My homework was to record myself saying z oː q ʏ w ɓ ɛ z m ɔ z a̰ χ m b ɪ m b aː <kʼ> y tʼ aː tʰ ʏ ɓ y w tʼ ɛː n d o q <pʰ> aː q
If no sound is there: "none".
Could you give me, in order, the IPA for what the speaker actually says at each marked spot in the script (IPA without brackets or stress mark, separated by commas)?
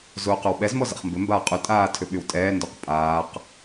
qʼ, pʼ